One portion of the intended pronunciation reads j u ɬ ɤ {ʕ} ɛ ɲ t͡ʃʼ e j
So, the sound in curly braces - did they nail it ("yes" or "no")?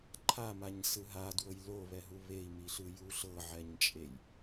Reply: yes